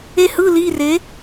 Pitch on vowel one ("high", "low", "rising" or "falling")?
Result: falling